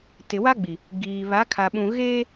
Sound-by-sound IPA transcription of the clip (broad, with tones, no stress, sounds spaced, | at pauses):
t ɪ˨ w a˦ ɡ͡b i˨ | ɡ iː˨ β a˨˦ kʰ a˨ ɓ ũ˨ ɣ eː˦